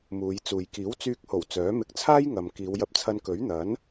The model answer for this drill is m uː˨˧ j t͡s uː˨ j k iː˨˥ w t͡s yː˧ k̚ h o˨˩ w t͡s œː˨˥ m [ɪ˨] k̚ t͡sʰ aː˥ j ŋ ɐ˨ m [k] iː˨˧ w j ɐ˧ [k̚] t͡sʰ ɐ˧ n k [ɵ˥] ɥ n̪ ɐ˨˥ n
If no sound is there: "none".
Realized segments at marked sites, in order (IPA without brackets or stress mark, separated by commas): ɪ˧, k, p̚, ɵ˨˥